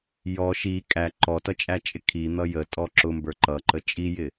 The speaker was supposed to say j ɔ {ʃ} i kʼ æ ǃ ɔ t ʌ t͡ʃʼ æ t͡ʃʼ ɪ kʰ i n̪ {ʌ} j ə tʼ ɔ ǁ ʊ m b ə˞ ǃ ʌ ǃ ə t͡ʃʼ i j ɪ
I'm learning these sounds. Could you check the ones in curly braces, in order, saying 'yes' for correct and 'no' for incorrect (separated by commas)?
yes, yes